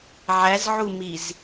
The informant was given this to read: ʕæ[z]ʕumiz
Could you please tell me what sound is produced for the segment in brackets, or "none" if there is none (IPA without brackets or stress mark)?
z